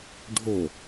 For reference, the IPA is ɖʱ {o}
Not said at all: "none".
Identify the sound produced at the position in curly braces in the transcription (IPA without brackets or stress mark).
o